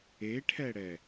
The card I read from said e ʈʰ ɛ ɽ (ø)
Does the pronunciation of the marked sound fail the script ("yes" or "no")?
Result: yes